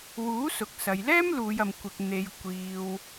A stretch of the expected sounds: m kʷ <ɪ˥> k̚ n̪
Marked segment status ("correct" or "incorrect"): incorrect